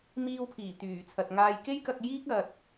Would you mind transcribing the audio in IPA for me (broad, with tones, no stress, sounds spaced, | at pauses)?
m iː˧ w pʰ iː˨˩ t̪ yː˨˩ t͡sʰ ɐ˨ t̚ ŋ aː˧ j k e˥ j k ɐ˧ k̚ j iː˥ k̚ ɐ˧ t̚